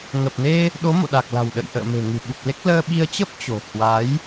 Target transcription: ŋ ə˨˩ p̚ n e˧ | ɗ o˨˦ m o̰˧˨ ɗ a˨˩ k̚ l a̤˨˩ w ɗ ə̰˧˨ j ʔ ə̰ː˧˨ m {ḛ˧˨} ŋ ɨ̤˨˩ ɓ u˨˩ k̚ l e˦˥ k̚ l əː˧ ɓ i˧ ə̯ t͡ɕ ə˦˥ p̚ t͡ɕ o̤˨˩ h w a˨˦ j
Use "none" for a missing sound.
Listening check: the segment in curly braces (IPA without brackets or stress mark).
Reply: e̤˨˩